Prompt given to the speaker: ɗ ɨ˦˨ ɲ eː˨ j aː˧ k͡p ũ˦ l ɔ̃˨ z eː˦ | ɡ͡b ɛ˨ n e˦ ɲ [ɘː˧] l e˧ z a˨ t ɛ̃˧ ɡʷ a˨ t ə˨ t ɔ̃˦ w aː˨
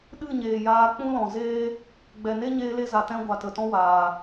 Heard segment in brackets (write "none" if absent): eː˧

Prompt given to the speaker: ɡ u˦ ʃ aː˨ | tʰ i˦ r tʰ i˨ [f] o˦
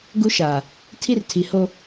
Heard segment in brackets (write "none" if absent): h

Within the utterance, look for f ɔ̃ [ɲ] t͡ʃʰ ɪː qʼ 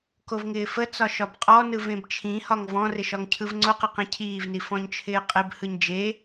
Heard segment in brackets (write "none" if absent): ɲ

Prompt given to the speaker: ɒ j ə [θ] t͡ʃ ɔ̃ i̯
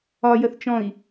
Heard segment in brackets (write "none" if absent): θ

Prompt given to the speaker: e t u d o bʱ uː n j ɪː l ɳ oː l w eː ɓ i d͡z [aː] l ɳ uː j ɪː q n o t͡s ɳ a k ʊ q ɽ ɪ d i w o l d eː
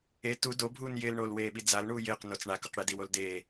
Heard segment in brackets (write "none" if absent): a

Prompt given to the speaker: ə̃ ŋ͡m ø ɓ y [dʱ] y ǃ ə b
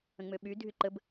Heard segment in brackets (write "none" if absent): dʱ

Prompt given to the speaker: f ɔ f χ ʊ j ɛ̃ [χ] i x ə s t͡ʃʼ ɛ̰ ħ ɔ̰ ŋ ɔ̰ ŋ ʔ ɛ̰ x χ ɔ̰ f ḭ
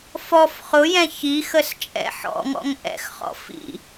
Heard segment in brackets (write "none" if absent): ç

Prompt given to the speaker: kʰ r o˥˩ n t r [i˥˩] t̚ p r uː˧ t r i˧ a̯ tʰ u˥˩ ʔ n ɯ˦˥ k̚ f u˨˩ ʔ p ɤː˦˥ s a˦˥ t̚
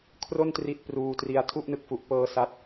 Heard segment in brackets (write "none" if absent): i˥˩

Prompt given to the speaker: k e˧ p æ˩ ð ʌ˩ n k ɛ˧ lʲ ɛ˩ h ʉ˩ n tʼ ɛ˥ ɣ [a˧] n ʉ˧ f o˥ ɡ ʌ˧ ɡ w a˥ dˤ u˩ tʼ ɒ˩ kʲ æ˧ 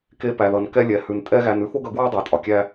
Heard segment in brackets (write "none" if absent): æ˧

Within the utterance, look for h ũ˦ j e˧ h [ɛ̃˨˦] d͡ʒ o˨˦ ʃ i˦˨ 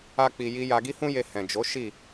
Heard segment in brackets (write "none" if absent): ɛ̃˨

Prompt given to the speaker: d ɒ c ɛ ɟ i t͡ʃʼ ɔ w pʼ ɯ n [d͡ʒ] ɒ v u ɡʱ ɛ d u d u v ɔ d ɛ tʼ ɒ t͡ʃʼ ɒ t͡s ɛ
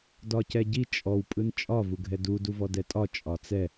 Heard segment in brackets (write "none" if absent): t͡ʃʼ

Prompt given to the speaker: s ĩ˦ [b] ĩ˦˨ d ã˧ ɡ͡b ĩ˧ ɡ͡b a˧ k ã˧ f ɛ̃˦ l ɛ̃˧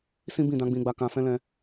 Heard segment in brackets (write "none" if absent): b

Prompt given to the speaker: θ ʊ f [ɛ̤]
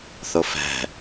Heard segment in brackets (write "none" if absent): ɛ̤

